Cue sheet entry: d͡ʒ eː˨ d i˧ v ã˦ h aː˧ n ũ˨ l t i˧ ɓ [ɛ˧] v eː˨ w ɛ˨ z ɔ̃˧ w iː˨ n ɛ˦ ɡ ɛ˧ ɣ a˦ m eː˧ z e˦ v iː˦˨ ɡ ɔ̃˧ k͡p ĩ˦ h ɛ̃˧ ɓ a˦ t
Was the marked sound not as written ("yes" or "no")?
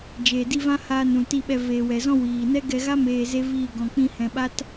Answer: no